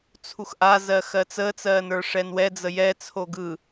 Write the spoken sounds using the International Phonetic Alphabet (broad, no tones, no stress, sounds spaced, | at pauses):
t͡sʰ u x ʔ a z ɜ x ɜ t͡s əː t͡s ɜː n ə˞ ʂ ɛ n w ɛ d͡z ə j ɛ t͡sʰ o ɡ ɯ